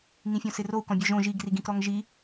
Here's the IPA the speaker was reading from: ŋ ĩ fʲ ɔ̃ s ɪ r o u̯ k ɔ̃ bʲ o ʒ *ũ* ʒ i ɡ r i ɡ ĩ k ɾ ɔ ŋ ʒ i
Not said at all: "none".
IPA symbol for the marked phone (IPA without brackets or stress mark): õ